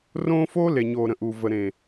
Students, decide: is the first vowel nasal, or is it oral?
nasal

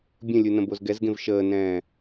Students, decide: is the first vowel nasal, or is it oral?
nasal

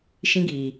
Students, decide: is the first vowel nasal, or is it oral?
nasal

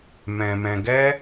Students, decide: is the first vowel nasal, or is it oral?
nasal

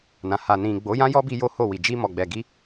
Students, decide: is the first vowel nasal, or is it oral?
nasal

